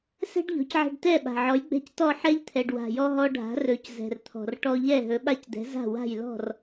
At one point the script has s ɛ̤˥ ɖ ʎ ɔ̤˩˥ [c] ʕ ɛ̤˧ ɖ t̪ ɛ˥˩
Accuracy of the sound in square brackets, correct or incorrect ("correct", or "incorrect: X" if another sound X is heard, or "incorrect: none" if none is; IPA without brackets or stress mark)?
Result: correct